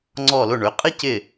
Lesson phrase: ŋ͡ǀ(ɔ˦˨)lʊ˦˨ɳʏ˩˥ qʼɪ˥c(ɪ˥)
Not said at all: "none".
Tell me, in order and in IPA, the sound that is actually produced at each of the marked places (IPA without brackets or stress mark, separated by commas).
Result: ɔ˦˨, ɪ˦˨